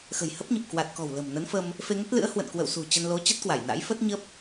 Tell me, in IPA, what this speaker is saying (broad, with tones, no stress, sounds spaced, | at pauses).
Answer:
x ə̤˨˩ j h ə˦˥ p̚ ɲ ə˨˩ p̚ k w a˨˩ t̚ k ɔ̤˨˩ w l ə̤˨˩ m n ə˨˦ n f ə˧ m | f e˧ ŋ ə˦˥ t̚ l ɨ̰˧˥ ə̯ h w ə̰˧˨ n k w ə̰˧˨ w s ṳ˨˩ t͡ɕ ə˧ n l o˨˦ t͡ɕ ə˦˥ t̚ k w a˧˩ j n a̰˧˥ j f ə˦˥ t̚ ɲ ə˦˥ p̚